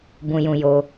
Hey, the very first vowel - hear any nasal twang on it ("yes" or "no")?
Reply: yes